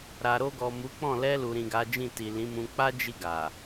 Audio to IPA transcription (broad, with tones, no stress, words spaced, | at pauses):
ɾa˨ɾo˧ɡɔ˨ mu˨˦k͡pɔ̃˦˨ lɛ˧ lu˨ɾĩ˨ɡa˨˦d͡ʒĩ˦˨ ti˨lĩ˨˦mũ˧ k͡pa˦d͡ʒi˧ ɡa˨